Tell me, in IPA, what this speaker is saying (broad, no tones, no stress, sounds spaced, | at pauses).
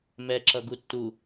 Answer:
m ɛ ǁ ʌ ɡ u tː u